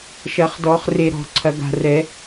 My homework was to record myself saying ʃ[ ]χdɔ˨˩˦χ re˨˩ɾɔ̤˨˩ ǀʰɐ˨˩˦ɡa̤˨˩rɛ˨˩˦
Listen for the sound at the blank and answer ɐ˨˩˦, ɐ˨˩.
ɐ˨˩˦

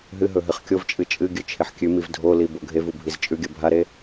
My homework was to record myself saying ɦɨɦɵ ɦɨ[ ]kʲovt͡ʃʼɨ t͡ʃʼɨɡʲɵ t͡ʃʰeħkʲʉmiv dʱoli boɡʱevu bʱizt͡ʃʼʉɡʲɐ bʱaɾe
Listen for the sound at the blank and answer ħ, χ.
χ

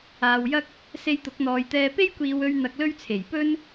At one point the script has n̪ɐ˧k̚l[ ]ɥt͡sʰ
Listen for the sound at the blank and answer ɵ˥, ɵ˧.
ɵ˥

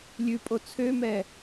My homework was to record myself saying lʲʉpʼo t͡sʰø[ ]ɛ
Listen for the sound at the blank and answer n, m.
m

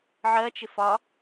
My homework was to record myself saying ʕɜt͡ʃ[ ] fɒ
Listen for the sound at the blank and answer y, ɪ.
ɪ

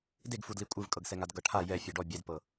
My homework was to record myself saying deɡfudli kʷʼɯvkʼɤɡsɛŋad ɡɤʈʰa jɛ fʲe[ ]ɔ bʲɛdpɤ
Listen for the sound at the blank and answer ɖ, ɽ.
ɖ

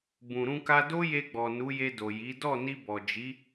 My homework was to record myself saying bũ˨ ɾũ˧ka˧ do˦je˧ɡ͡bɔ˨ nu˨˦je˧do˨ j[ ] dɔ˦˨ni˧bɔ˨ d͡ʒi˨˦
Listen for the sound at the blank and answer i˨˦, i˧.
i˨˦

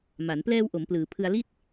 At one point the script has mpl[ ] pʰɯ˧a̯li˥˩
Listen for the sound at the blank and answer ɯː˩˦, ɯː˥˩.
ɯː˩˦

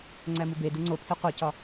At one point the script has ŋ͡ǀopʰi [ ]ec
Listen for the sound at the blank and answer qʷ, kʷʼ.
qʷ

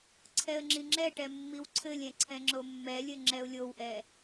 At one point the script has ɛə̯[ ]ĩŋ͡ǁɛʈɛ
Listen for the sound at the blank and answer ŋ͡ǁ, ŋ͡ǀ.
ŋ͡ǁ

